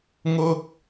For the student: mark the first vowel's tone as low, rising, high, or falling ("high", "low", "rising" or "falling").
high